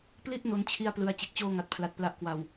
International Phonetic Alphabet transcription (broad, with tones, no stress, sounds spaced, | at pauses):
p l i˥˩ t̚ n o˦˥ n t͡ɕʰ i˥˩ a̯ p l ɯ˧ a̯ t͡ɕ e˨˩ k̚ t͡ɕ oː˥˩ ŋ a˨˩ t̚ pʰ l a˨˩ t̚ p l a˦˥ ʔ k w a˨˩ w